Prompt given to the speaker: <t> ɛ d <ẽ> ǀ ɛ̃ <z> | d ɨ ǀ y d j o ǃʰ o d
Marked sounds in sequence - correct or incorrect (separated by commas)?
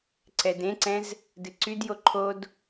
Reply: incorrect, correct, correct